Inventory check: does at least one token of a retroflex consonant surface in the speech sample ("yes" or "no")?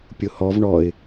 yes